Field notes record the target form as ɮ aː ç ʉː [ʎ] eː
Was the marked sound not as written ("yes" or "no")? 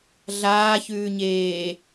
yes